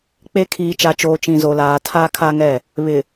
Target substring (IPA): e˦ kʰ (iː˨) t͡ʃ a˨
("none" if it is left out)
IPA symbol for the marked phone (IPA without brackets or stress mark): iː˨